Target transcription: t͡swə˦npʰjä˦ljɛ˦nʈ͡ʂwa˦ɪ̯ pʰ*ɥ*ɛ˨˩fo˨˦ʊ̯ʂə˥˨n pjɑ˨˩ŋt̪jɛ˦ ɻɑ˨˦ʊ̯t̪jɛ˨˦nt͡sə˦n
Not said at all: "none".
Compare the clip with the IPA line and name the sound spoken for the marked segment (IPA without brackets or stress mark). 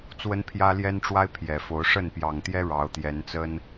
j